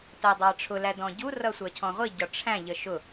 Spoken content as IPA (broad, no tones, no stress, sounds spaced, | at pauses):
t ɜ dˤ ɑ ʈ͡ʂʰ ʊ l æ d ɔ̃ ɟ u r ʌ sʷ ɜ cʰ ɔ̃ ʁʷ i ɟ ɒ ʈ͡ʂʰ æ̃ ʎ ə ʃ ʊ